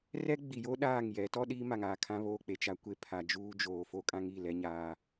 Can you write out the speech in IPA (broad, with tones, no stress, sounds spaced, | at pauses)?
r ɛ˦ ɡ͡b i˨ j o˦ ɗ aː˦˨ ŋ j ɛ˨˦ t ɔ˦ ɗ iː˦ m a˨ ŋ aː˨ kʰ ã˦ β oː˦ k͡p e˨ t͡ʃ a˦ kʷ e˦ pʰ a˨ d͡ʒ uː˦ d͡ʒ oː˨ f o˦ kʼ ã˦ ŋ i˦˨ l ɛ˦ ɲ aː˦